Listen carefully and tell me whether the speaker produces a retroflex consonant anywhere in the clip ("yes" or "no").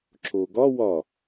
no